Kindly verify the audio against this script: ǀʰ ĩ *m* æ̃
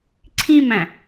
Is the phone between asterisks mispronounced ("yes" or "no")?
no